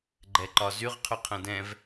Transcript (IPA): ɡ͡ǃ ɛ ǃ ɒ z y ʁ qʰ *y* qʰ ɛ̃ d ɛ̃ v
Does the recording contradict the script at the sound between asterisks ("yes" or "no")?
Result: no